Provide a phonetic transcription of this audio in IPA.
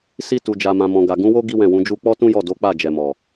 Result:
s i˧ t u˨ d͡ʒ a˨ m ã˨ m ɔ̃˨ ɡ a˨ ɡ ũ˨˦ w o˦ ɡ i˦ w ɛ̃˦˨ w ũ˨˦ d͡ʒ u˦ k͡p ɔ˦ t ũ˦ j ɔ˦˨ d o˨˦ k͡p a˦˨ d͡ʒ ɛ˨ m ɔ˨

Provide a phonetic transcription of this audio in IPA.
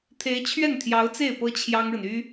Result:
t̪ʰ e˧˥ ɪ̯ t͡ɕʰ ɥ ɛ˥˩ n t̪ʰ j ɑ˧˥ ʊ̯ t͡s e˥˩ ɪ̯ p ɤ˥ t͡ɕʰ j ɑ˥ ŋ ɻ ə˨ n y˥

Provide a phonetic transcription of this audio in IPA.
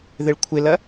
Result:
ð ɪ ɭ kʷʰ ɪ l ɐ

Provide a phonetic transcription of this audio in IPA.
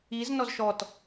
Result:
i z n ɔ z ʃ ɔ t

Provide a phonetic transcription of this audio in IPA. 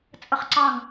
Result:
t͡sʼ ə χ ǀ ɑ ŋ

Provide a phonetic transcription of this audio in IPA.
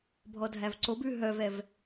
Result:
bʱ ɔ dʱ æ v ǀ o b ʉ ɦ œ v ɛ v

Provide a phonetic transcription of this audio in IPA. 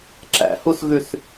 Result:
ǁ æ̰ h u s ɣ ʉ s

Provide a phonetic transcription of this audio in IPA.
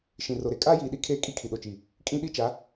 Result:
ʃ ĩ˨ r o˨ ɾ e˨ kʼ aː˦ j iː˨ ɗ i˦ kʰ eː˦ kʼ i˦ kʰ i˨ ɗ o˨ t͡ʃ i˨ | kʼ ĩ˦ ɗ i˦ t͡ʃ a˨˦

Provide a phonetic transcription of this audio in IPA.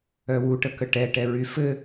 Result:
œ w u ʈ ə k ə ʈ ɛ ʈ ɛ ɹ y f ɘ

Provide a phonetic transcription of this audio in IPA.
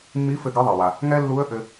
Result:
mː i˧˥ f ɘ˧ ɡ ɘ˧˥ ðˤ e˩ w a˩ | ŋ ɛ˥ lː u˧˥ ə̯ ʔ ɘ˧

